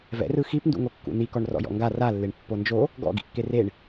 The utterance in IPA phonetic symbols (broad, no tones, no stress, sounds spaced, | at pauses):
v ɛ̰ r ɯ x i p n d ṵ ŋ o kː ṵ n̪ i k ɔ ɳ r ɔ̰ j ɔ̰ ŋ ɡ a r a lː e ɳ pː o n d͡ʒ o | ɡ ɔ̰ ɡ ḭ kː e r e ɳ